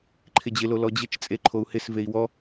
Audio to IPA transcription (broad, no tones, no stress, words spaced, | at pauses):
ǃʰɪd͡ʑɪlo lɔd͡ʑɪt͡ʃt͡sʼe ǃʰou̯hɪsvei̯ wɔ